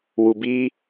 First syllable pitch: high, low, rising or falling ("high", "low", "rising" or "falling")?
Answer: low